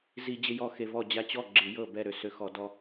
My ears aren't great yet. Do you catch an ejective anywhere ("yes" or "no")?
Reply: no